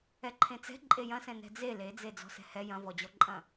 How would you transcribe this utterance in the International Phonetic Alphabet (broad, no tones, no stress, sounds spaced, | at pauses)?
ɛ ǃʰ ẽ t͡s ɛ̤ ǃʼ e j ɐ̃ s ɛ̃ n ɛ̤ d͡z e l e d͡z e d͡z ɔ̤ s ɛ̤ h ɛ j ɐ̃ v ɔ d͡ʑ ɔ ǃʼ ɐ̃